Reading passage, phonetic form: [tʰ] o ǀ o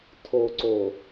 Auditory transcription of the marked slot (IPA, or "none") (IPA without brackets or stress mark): tʰ